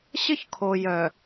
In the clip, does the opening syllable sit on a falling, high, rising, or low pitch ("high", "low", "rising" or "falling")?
high